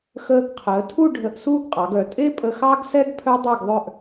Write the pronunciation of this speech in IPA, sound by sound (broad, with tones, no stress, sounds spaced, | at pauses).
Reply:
x əː˧ ɡ qʰ əː˩˧ tʰ u˥˧ ɖʱ ə˧ ʔ s uː˥ ɡ qʼ ɑ˩˧ ɡ œ˩˧ tʼ e˥ pʼ ə˧ x ɑ˥ ɡ s ɛ˥ ɡ pʰ œ˥ dˤ e˥˧ ɡ ðˤ œ˥˧ ʔ